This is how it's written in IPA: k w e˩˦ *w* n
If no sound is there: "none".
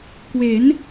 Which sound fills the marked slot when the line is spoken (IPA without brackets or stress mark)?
none